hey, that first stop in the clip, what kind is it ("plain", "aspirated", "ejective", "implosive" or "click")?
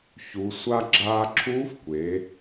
click